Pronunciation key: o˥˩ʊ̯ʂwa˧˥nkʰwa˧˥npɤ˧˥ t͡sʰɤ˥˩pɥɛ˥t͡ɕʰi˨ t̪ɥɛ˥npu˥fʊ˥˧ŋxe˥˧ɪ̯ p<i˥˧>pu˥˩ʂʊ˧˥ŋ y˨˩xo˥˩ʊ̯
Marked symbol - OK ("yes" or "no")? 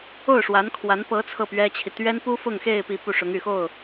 yes